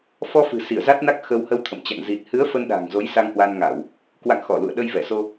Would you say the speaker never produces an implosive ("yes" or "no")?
no